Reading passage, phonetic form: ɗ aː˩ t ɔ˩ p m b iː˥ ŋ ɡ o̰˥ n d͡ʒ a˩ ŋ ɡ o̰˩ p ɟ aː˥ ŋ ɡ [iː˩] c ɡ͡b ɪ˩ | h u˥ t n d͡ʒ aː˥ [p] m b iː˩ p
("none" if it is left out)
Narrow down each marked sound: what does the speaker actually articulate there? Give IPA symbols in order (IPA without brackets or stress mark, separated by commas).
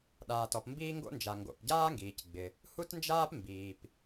iː˩, p